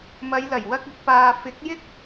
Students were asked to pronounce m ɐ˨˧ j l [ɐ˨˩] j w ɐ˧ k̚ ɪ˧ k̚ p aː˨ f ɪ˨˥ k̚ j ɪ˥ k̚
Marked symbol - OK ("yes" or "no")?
yes